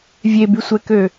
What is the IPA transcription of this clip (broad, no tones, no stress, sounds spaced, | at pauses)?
vʲ e b y sʷ ɛ k ø